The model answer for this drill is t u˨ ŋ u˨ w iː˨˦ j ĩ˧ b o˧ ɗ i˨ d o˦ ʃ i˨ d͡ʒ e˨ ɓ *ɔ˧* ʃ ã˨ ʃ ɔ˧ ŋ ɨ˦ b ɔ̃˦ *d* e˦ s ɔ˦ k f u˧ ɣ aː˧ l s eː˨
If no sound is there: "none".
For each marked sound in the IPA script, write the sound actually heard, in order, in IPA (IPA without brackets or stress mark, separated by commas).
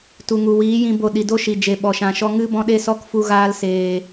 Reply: ɔ˨, ɗ